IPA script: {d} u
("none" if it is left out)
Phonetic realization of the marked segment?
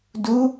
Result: d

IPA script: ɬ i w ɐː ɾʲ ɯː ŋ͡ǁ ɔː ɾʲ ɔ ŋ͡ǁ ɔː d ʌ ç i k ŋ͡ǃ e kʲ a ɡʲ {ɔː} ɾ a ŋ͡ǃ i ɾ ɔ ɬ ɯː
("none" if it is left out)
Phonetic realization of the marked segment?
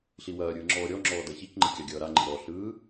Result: ʌː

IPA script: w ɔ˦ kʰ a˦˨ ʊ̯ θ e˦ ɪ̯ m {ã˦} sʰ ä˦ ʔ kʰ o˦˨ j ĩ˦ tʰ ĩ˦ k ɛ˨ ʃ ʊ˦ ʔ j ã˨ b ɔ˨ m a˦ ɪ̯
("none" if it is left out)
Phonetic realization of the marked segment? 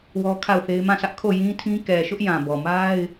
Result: ã˦˨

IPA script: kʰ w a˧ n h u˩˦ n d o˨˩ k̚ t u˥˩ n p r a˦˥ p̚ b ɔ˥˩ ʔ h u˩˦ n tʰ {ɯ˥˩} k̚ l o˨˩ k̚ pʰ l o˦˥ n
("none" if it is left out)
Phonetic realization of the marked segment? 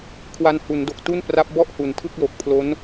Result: ɯ˥˩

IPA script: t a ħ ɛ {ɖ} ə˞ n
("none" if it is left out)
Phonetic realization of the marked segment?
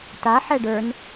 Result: ɖ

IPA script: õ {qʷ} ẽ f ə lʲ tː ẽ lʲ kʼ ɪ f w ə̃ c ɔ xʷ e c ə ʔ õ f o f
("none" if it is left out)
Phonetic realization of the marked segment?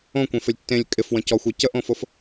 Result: kʷ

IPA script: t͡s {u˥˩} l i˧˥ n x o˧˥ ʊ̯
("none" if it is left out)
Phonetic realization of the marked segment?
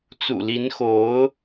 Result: ṵ˨˩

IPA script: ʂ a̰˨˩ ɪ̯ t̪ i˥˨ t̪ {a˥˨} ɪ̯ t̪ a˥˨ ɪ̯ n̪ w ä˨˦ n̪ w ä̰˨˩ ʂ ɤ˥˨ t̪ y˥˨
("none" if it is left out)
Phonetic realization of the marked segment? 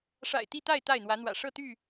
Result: a˥˨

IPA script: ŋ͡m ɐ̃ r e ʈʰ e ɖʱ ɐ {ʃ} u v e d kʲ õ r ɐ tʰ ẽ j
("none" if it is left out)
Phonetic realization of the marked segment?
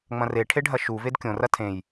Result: ʃ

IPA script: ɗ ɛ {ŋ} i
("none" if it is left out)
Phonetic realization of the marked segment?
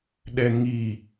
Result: ŋ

